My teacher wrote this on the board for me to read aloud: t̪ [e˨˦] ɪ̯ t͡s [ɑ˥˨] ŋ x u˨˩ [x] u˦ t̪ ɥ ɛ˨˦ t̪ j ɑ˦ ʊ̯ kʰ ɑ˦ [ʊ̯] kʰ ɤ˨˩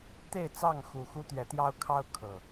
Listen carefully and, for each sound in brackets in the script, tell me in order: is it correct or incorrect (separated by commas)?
incorrect, correct, correct, correct